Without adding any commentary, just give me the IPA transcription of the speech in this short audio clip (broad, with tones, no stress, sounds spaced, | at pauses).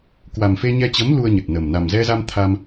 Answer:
k w a˨˩ m f e˧ ɲ ɛ˧ t͡ɕ ə˨˦ m l u˧ ə̯ ɲ ə˨˩ t̚ n ə˨˩ m n a˨˩ m z ɛ˧ z a˧ m t̪ʰ a˧ m